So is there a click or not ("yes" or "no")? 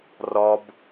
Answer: no